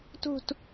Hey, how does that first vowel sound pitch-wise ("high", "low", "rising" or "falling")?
falling